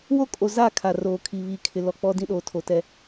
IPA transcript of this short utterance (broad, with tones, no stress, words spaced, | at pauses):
wo˦kʼo˨za˦˨ kʰa˨ roː˨kʰi˨ βiː˨kʰɪ˨ lɔ˨k͡pɔ˦dĩ˦ɗoː˨˦ tʰo˨tɛ˦